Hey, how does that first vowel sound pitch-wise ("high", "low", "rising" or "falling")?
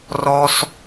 high